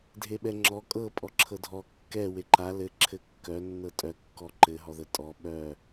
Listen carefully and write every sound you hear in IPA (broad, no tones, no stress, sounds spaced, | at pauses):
dʱ e ɓ ɛ ŋ͡ǁ ɔ kʼ ɤ pʼ ɔ ǁʰ ɤ dʱ ɔ kː ɛ w e ǃ a l ɘ ǁʰ ɘ kː œ nː ɤ tʼ œ kː ɔ ǃ ɘ ɦ ɔ ð ə tʼ ɔ ɓ œ